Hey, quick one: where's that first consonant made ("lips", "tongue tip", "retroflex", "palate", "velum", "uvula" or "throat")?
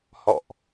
throat